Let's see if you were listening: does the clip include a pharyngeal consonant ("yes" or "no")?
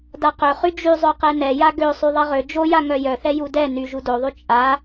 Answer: no